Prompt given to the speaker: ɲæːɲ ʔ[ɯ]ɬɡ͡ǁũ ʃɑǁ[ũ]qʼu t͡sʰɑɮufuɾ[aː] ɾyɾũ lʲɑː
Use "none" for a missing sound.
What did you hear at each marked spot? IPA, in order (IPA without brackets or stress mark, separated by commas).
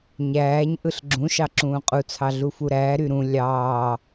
ɯ, ũː, æː